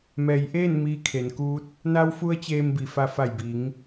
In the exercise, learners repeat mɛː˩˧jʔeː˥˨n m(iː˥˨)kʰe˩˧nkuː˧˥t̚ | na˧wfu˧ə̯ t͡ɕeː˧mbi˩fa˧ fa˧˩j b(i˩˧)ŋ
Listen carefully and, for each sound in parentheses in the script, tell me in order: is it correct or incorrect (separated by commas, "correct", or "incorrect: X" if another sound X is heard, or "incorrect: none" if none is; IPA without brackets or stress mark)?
incorrect: iː˧, correct